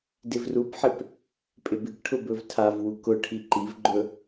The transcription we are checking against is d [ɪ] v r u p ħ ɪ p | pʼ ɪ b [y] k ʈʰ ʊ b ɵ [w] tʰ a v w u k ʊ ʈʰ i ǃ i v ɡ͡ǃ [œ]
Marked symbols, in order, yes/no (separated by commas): yes, no, no, no